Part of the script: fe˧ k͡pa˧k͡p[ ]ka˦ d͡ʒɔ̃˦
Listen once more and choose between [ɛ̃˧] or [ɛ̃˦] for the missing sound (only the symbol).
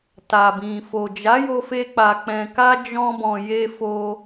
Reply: ɛ̃˧